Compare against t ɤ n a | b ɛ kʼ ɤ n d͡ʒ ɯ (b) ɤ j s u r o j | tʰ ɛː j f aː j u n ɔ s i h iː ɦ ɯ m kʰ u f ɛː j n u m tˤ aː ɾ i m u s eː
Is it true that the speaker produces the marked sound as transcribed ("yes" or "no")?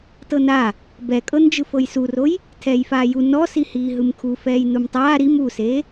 no